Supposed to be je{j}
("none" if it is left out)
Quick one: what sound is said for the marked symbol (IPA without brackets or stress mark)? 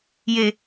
none